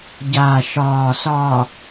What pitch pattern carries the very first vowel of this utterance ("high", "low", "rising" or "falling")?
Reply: low